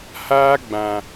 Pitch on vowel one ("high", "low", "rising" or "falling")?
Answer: high